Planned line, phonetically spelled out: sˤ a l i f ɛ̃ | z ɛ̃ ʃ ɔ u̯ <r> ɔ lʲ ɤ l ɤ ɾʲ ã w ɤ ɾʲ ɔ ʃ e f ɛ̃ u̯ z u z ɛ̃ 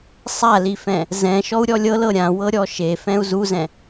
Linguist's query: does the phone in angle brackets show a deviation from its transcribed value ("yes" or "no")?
yes